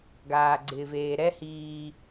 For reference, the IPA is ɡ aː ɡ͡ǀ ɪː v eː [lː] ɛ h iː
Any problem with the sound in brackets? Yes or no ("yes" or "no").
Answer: yes